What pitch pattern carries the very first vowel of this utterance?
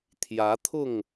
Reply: rising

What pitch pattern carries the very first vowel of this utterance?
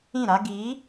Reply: falling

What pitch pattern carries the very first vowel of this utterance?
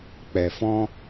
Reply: low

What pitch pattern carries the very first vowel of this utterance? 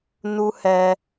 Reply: high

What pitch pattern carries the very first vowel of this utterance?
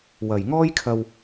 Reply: low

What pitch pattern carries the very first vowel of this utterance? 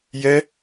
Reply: high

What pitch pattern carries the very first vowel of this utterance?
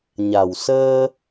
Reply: low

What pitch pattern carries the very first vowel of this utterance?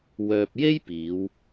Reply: low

